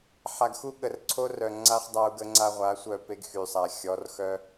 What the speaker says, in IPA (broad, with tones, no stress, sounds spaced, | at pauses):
ħ a˨ ɡ x u˦ ɠ ə˨ r ǀʰ o˦ r œ˨ ŋ͡ǀ a˦ χ dˤ a˦ u̯ ɡ ə˦ ŋ͡ǀ a˦ ʁʷ a˨˦ sʷ œ˦˨ p e˦ ɡ x y˨ sˤ a˨ xʲ ɔ˨˦ r x œ˦